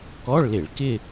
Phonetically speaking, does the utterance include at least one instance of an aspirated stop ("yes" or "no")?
no